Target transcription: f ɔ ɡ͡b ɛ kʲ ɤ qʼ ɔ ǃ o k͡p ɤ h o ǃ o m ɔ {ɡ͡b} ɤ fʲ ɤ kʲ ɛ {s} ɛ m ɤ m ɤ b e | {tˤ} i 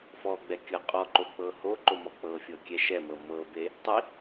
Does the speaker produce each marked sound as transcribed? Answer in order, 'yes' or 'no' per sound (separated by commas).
no, no, yes